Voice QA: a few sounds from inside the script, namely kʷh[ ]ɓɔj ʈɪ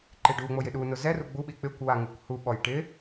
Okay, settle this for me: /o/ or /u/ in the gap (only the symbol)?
u